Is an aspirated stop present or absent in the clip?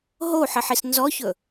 absent